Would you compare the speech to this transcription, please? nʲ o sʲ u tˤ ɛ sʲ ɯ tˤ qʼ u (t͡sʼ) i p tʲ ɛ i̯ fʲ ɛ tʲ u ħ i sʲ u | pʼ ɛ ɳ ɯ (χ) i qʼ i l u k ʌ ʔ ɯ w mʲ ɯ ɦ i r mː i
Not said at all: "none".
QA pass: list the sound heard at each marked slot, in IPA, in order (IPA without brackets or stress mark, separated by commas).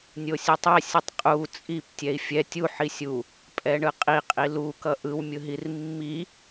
t͡sʼ, qʼ